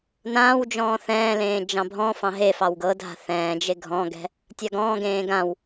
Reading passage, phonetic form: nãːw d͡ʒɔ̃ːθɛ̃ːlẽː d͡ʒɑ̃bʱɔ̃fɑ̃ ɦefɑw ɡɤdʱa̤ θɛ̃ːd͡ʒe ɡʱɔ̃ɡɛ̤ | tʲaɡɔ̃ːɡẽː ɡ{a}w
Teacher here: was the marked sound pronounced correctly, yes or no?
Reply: no